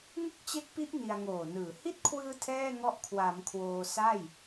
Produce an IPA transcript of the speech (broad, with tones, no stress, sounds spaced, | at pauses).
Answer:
ŋ ɯ˥˩ k̚ t͡ɕ e˦˥ k̚ p i˦˥ ʔ n i˧ a̯ ŋ oː˨˩ n ɯː˨˩ h i˦˥ t̚ kʰ w ɯː˧ tʰ ɛː˥˩ ŋ ɔ˦˥ ʔ kʰ w a˩˦ m kʰ w oː˧ s a˥˩ j